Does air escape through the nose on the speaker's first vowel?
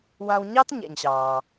yes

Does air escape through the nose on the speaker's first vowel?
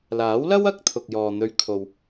no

